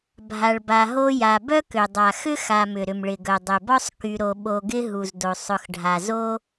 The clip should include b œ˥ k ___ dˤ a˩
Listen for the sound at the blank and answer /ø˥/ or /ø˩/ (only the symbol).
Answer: ø˩